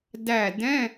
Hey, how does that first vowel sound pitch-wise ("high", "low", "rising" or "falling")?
falling